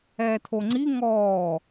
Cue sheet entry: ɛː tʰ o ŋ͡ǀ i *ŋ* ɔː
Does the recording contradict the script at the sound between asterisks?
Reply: no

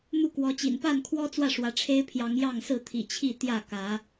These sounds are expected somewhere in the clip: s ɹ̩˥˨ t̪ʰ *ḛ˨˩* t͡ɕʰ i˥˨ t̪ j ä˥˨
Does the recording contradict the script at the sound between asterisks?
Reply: yes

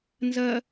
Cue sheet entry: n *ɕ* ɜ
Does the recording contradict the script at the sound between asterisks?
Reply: yes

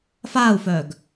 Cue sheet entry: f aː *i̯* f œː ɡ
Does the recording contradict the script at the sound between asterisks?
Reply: yes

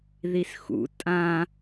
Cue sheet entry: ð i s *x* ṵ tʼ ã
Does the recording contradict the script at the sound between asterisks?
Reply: no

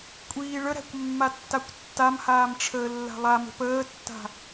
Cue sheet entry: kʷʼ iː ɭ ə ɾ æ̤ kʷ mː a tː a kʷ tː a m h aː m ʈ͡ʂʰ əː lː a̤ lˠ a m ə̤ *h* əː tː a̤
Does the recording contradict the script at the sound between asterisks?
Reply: yes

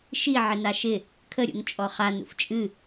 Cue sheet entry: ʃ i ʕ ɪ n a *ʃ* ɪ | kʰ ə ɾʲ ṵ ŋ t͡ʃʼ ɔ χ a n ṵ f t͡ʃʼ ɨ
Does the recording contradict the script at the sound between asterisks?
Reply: no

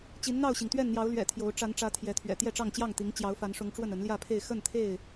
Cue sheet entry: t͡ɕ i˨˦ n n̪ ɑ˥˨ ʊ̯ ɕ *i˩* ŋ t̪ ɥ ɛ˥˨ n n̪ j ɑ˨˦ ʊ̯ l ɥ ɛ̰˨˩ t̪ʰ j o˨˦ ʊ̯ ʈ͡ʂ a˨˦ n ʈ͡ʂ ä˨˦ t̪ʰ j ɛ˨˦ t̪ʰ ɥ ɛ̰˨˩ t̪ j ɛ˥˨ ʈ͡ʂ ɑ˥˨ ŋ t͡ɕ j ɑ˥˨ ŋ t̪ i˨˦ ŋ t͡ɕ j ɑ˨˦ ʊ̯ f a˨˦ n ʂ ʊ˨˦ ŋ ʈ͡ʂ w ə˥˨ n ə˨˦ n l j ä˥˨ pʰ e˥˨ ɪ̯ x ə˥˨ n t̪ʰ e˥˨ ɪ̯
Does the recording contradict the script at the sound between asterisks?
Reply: no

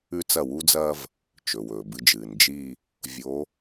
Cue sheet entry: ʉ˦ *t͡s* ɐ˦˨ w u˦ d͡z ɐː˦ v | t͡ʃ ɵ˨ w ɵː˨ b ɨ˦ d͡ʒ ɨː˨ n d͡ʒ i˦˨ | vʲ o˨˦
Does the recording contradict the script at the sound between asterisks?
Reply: no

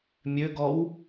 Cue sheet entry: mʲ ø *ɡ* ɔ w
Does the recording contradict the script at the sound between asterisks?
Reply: no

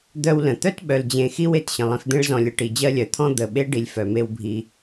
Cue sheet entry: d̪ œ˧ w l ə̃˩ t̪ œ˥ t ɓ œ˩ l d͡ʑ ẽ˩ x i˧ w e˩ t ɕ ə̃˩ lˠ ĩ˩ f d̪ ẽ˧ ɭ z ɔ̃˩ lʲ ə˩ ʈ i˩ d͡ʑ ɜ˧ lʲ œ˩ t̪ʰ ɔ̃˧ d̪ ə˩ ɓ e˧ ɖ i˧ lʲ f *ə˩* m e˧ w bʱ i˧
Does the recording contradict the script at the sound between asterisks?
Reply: yes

